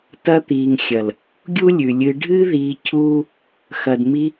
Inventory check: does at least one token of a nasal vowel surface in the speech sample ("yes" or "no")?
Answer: no